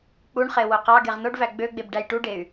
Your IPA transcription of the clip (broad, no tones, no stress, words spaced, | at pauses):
k͡puɳχe woqɑɡeʁ noɖvæ ɡ͡bøɡ͡beb ɖæjʈuɖey̯